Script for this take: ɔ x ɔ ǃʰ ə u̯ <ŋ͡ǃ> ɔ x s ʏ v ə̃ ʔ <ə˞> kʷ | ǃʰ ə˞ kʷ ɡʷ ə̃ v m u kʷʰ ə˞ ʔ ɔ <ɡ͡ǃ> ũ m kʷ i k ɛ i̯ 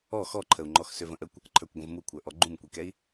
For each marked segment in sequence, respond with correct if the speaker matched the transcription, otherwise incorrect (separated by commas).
correct, incorrect, correct